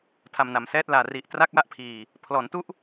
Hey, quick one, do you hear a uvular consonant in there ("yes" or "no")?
no